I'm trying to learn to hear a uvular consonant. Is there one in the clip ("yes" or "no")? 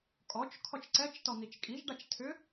no